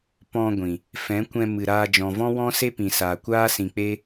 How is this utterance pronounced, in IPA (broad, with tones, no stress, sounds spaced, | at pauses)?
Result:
p ɔ̃˧ ɡʷ ĩ˨ | f ɛ̃˨˦ kʷ ɛ̃˧ m ɨ˨ ɾ aː˧ d͡ʒ ɔ̃˨ v ɔ̃˦ w ɔ̃˦ s e˦ p ĩ˨ s aː˨ kʷ aː˦ s ĩ˨ k͡p e˦